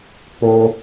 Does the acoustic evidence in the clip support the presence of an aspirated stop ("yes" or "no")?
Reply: no